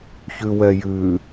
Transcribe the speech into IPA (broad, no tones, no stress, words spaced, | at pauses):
çʉwɛjʉ